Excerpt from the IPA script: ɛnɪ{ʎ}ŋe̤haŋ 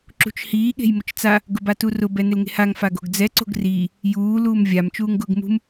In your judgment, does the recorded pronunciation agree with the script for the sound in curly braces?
no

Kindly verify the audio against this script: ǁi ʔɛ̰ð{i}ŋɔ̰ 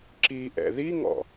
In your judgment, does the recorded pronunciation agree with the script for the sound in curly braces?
yes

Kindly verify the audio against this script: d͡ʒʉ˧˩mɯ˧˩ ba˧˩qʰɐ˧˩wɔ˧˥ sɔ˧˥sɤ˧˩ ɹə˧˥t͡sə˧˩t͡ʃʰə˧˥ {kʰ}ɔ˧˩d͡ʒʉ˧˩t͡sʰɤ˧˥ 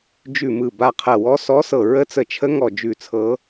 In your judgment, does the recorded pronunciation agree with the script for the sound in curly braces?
no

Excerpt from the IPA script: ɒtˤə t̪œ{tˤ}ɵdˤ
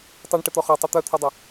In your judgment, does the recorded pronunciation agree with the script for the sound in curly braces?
no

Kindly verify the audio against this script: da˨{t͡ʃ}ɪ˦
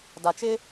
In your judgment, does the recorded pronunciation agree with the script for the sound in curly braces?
yes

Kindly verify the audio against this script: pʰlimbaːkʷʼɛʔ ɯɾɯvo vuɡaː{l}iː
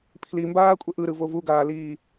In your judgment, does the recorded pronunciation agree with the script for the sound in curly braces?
yes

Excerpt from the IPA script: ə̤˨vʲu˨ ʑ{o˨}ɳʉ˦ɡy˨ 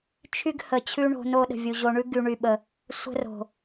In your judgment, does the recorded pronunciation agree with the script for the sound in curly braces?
yes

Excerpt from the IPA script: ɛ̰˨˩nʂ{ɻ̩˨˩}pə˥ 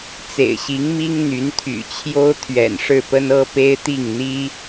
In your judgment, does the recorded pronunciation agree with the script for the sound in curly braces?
no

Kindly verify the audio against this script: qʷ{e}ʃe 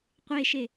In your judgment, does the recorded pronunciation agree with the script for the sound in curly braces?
yes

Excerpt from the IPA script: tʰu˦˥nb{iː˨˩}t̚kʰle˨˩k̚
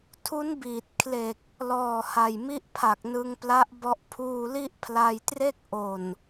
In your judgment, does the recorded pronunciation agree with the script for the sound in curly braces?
yes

